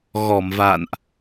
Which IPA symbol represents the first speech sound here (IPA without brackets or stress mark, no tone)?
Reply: ɣ